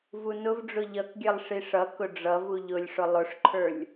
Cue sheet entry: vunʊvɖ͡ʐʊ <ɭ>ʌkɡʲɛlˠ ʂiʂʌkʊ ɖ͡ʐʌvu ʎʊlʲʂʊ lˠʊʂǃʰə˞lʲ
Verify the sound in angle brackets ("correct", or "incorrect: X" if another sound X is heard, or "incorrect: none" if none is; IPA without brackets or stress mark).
incorrect: ʎ